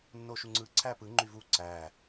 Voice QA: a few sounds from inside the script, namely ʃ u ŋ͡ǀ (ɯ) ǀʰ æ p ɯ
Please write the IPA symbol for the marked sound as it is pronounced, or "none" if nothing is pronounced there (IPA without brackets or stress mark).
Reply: ɯ